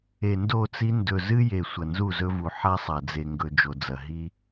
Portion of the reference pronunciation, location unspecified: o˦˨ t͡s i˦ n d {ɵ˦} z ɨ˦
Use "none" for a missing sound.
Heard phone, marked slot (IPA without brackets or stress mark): ɵ˨